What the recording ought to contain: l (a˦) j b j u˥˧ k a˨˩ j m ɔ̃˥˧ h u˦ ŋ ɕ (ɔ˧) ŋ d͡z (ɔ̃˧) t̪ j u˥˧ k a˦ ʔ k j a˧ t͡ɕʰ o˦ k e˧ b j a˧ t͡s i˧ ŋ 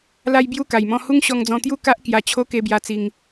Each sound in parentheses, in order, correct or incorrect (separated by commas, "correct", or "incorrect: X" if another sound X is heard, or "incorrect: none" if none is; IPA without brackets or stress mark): correct, correct, correct